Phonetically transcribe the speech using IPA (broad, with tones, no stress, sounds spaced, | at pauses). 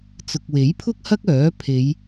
t͡s ʊ˨ k̚ w e˨˥ j pʰ ʊ˥ k̚ h ɐ˥ k̚ œː˨˥ pʰ e˨˧ j